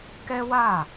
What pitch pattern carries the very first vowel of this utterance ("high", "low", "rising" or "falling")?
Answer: high